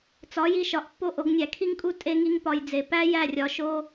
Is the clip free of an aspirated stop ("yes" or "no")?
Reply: no